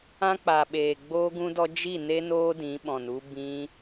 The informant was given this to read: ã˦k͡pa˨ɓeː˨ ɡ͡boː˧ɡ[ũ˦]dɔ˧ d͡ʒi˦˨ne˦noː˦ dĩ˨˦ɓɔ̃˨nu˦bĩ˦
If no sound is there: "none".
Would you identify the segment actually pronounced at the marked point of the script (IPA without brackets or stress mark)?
ũ˧